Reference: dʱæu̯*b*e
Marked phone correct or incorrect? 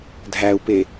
incorrect